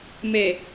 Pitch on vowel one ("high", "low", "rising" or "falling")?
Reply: low